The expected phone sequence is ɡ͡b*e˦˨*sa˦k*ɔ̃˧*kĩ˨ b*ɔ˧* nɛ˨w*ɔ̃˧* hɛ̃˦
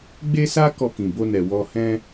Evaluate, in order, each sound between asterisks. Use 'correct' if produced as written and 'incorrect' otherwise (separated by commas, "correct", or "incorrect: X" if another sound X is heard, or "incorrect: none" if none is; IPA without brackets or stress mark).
incorrect: e˦, incorrect: ɔ˧, incorrect: o˧, incorrect: ɔ˧